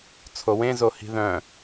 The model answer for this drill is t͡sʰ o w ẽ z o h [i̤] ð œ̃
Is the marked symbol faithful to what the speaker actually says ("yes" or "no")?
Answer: yes